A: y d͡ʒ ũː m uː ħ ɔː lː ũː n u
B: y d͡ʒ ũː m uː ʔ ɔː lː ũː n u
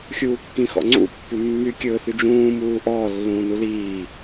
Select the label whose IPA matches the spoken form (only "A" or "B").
B